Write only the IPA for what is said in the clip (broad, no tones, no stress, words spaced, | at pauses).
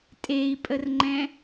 tʼei̯pʼərŋ͡ǃɛ̃